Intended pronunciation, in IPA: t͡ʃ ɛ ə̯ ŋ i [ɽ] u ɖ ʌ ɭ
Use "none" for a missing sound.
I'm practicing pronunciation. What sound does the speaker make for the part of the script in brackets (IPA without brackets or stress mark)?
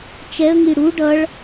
ɽ